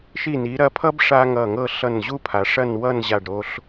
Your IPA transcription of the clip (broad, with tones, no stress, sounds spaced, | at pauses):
ʃ i˧˩ n i˩˧ ɾ ɐ˧ pʰ ʌ˥ b ʂ a˥ ŋ ʌ˧˩ ŋ ɤ˥˧ ɬ ʌ˧˩ n ʑ u˥ pʰ a˩˧ ʂ ɐ˥˧ n w ʌ˥˧ n ʑ a˧˩ ɖ ɾ o˧ ɬ